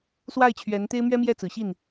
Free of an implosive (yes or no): yes